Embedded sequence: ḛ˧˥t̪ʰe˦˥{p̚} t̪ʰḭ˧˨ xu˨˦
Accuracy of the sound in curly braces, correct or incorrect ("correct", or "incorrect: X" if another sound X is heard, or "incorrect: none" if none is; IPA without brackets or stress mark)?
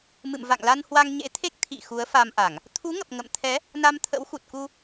incorrect: k̚